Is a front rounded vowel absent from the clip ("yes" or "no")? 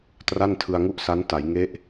yes